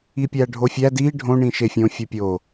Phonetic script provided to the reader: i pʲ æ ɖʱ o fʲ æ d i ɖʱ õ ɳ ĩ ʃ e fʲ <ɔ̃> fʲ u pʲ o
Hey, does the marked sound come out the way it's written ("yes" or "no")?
no